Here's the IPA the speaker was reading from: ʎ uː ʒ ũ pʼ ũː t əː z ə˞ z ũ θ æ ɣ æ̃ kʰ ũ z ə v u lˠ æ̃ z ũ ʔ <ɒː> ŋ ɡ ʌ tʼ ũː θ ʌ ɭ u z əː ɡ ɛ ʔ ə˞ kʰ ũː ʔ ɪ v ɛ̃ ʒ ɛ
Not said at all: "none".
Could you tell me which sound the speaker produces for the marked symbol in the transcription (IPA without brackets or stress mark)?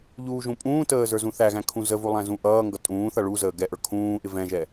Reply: ʌː